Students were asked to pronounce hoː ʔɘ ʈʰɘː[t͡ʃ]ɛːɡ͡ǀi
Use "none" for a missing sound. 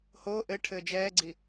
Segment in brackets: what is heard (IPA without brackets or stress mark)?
d͡ʒ